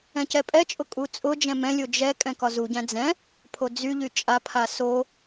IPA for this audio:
ɛ̃ c ɛ pʼ ɛ t͡ʃʼ ʊ kʼ u t͡sʼ ʊ d͡ʒ ɛ̃ m ɛ̃ lʲ o d͡ʒ ɛ kʼ ɛ̃ k ɒ z u ɟ æ̃ d͡z ɛ̃ | pʰ o d͡z y ʎ y t͡ʃʼ a pʰ a s o

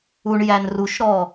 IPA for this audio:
u ɳ j æ n r u ʃ ɾ ɔ

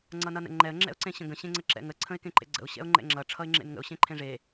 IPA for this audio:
ŋ͡ǀ ʌ n ʌ n ə̰ ŋ͡ǃ ɛ ə̯ ŋ͡ǁ ɛ̰ ʊ̯ ǀ ẽ ɕ ə̃ ɡ ə̃ ɕ ẽ ŋ͡ǀ ə ǁ ɛ̰ ŋ ə ǀʰ ə̃ ɪ̯ k ẽ ǃ ḛ ɡ͡ǀ ə̰ ʊ̯ ɕ ɛ̰ ʊ̯ ŋ͡ǃ ɛ̰ ŋ͡ǁ ʌ ʈ͡ʂʰ ʌ ɪ̯ ŋ͡ǁ ḛ n ŋ ə̰ ʊ̯ ɕ ẽ ǃʰ ẽ ʐ e

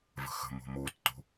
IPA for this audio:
v ə̤ x ə̤ m o̤ m o tː o̤

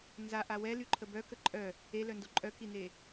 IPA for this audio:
n z a ʔ a w ɛ l y ǃʰ ə b œ k ə ǃʼ œ | e l œ n d o ǃʼ œ k i n e

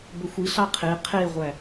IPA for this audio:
b ɵ xʷ i ɬ ɑ qʰ e qʰ e ʁʷ æ

